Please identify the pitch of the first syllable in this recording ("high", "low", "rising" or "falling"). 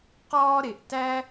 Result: high